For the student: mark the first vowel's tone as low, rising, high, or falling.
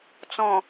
low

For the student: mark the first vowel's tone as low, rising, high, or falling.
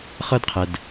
high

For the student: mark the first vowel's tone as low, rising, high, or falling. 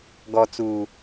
low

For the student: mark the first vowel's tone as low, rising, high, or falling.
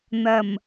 low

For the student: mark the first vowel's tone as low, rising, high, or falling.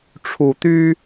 low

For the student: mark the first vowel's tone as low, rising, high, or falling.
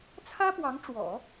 high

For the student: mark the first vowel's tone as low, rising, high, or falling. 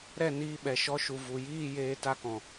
falling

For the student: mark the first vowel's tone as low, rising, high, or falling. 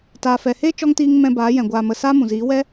low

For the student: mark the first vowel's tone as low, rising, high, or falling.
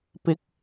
rising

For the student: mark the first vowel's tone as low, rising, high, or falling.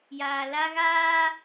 low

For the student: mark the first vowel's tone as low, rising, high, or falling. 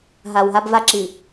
low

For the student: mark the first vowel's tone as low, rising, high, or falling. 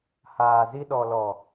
low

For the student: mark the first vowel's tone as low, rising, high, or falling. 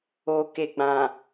low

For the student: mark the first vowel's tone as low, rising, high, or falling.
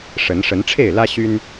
rising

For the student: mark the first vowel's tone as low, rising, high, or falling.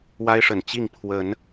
high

